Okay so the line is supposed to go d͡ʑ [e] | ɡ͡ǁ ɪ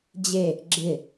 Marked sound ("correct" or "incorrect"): correct